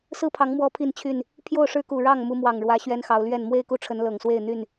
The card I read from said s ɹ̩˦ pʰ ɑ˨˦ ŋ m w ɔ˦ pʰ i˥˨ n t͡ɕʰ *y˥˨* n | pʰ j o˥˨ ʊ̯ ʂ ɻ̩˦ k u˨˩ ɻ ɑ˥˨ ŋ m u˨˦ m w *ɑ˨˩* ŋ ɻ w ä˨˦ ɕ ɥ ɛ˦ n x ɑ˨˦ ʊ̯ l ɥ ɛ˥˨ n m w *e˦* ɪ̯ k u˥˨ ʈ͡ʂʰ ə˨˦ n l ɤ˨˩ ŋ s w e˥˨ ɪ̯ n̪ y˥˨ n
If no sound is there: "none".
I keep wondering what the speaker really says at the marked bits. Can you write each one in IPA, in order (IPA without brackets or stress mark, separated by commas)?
y˥˨, ɑ˨˩, e˥˨